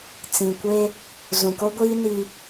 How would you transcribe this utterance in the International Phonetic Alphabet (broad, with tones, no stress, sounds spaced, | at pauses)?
t͡s ĩ˨ kʷ e˦ | z ũ˨ k o˦ ɡʷ iː˦ n i˨